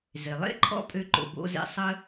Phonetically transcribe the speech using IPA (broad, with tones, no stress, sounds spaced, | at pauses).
z e˩ lˠ ḛ˥ ǃʰ ɔ̰˧ pʼ ø˧ ǃ o̰˩ b o̰˧ z ḛ˧ sˤ ə˥